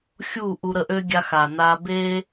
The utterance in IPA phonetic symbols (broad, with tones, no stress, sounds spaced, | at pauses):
xʲ u˦˨ ʔ u˧ ɾ ə˧ ʔ ø˦ ɡʲ a˧ x a˨ n a˧ b e˦